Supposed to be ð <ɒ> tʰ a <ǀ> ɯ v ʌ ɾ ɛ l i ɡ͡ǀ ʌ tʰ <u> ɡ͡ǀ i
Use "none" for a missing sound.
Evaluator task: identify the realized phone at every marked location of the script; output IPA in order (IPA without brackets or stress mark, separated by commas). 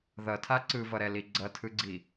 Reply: ʌ, ǀ, ɯ